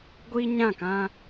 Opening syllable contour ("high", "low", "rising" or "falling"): high